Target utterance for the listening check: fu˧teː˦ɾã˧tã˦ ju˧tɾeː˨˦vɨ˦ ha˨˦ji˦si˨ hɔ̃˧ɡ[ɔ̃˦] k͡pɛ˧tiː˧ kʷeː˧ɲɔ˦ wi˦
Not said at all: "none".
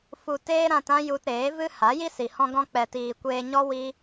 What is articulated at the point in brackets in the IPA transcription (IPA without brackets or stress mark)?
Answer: ɔ̃˧